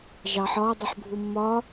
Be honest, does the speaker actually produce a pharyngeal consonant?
yes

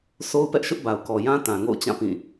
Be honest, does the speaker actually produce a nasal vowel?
yes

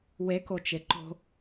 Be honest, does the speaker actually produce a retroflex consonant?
no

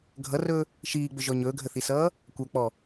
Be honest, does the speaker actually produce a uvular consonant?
no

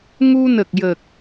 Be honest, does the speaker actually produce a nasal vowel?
no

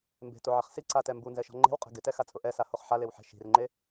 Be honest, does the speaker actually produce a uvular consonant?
yes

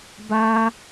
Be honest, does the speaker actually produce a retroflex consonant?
no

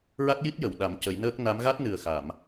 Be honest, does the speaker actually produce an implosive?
yes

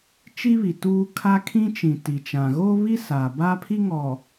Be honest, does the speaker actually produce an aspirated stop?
yes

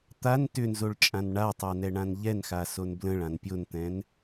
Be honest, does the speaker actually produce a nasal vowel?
yes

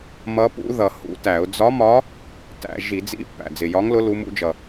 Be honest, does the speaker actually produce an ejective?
no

